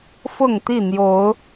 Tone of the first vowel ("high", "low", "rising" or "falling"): falling